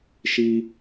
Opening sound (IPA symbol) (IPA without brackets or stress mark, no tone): ʃ